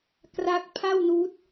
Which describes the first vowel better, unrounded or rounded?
unrounded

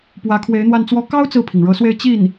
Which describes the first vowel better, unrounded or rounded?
unrounded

